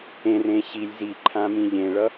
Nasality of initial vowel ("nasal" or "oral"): nasal